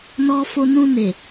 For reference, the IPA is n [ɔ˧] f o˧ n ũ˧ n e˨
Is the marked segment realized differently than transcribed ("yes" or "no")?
no